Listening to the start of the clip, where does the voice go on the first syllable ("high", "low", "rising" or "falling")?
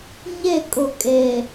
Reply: falling